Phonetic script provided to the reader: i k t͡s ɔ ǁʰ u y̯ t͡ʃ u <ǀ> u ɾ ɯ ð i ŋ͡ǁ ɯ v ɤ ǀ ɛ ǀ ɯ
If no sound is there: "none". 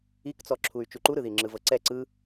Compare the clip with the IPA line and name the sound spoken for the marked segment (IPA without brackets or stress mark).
ǃ